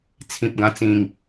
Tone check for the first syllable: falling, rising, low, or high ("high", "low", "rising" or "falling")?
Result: low